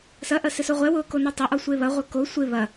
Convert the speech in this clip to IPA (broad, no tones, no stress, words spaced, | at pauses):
sɐʔɐ sɪsoʁʷɛwʊː konotˤɐʔɔ sʷeβɐʁʷɐ ko sʷɪ βɐ